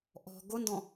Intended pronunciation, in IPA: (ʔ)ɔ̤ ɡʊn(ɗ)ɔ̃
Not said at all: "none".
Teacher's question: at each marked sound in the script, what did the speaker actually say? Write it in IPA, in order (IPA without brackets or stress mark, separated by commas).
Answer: ʔ, d